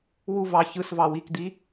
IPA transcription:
w u v ɑ ç ɯ s v ɑ w i k d̪ i

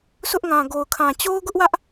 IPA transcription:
s ʊ˦ ʔ ŋ ã˨ ɡ o˨ ʊ̯ kʰ ã˨ t͡ɕ o˦ ʊ̯ ɡ ʊ˦ ʔ w ä˦ ʔ

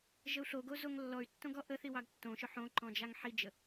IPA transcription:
ʒ ə u̯ ɬ o ɡ o z o ŋ lː ɔ y̯ tː õ ɡ ɔ ʔ ə θ i w ɑ ɡ tː õ ʃ ʊ ħ õ ǃ ɔ̃ d͡ʒ a ŋ ħ i d͡ʒ ə

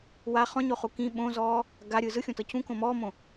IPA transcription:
w a χ ɔ̃ ɲ o χ u k ĩ ɓ õ z ɔː | ɡ a ɾʲ ɯ z ɯ xʲ õ t ɤ c ũ k õ m ɔː m õ

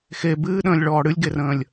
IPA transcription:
x e b ɨː ɗ ə̃ː lʲ ɭ ɔː ɽ ɨ lʲ ɡ e r ə̃ː lʲ

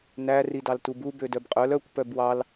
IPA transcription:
n æ r i d ɑ l t u b u b ø d œ b qʼ œ l œ kʷ p œ b w ɑ l

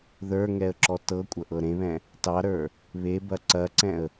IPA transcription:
ð ə˞ ŋ ɛ ə̯ ǁ ɔ t ɤ kʷʼ ɐ ʔ ɤ ɾ ẽ β ɛ̃ | t ɑ ɾ ə˞ | β e b ɐ ǀ ɐ ǀ ɛ̃ ə̯

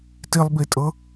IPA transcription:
t i lˠ b i tʼ ɤ

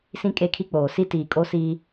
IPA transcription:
s ĩ˦ kʼ e˦˨ kʰ i˦ k͡p oː˨ s i˦ t iː˨ kʼ o˦ s iː˦

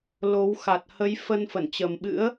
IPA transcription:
l o˨˦ w x a˨˩ t̚ h ə˨˦ j f ə˧ n f ə˧˩ n t͡ɕ ə˨˩ m ɓ ɨ̰˧˥ ə̯

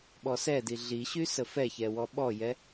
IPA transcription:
ɓ ɔ s ɛ d i ɮ i ɕ y s ə f ɛ ç ɛ w ɔ ɓ ɔ j ɛ

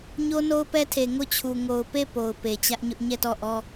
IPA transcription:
ɲ o˦ n o˦ ʊ̯ p ɛ˦ tʰ e˨ ŋ o˦˨ t͡ɕʰ u˨ ŋ o˨ ʊ̯ p e˦˨ p o˨ ʊ̯ p e˨ t͡ɕ ä˦ ʔ ɲ ʊ˦ ʔ ɲ ɛ˦˨ t ɔ˦˨ ʔ ɔ˦

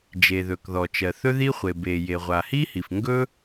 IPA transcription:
d͡ʒ e˩ ð ɵ˩ k ð ɔ˩ t͡ʃ ɜ˩ θ ɵ˥ ð i˥ χʷ e˩ b e˩ j e˩ ʁʷ a˩ h i˥ h i˩ f ŋ ɡ ɵ˥

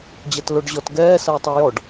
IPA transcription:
d͡ʑ ɐ t l o ɖ ʑ ɔ t ɡ ɛː s ɐː tˤ ɔ j ɔ ɖ

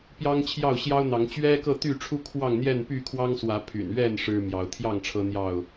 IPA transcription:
p j ɑ˦ ŋ t͡ɕʰ j ɑ˥˨ ʊ̯ ɕ j ɑ˦ ʊ̯ n̪ ɑ˨˦ ŋ t͡ɕ ɥ ɛ˦ k ɤ˥˨ t̪ y˥˨ ʈ͡ʂʰ u˦ kʰ w ɑ˥˨ ŋ n̪ j ɛ˥˨ n p y˥˨ kʰ w ɑ˦ ŋ s w ä˨˦ pʰ y̰˨˩ n ɥ ɛ˥˨ n ʂ ɻ̩˦ m j ɑ˨˦ ʊ̯ t̪ʰ j ɑ˥˨ ŋ ʈ͡ʂʰ ɤ˦ n̪ j ɑ˥˨ ʊ̯

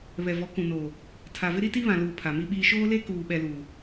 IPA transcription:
β ɛ˨ v ɔ˨˦ k ũ˨ n oː˨ | tʰ a˨ v ɪ˦ ɾ i˦ t i˦ β ã˨ l uː˨ pʰ a˨ m i˦ ɓ iː˦ ʃ oː˦ l e˦ k uː˨ ɓ ɛ˨ l uː˨

